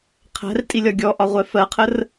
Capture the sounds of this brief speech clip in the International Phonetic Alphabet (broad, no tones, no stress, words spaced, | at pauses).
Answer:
qʰæ̤rtʼilʲɒ ɡʲɔʔɒʁʷɛ fɜqʰər